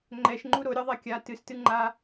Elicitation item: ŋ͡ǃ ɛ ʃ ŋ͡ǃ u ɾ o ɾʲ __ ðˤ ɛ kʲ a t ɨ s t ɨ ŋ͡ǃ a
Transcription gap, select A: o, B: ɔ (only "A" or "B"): B